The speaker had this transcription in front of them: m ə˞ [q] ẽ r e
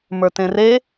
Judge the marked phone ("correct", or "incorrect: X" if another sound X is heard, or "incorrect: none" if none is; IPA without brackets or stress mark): incorrect: t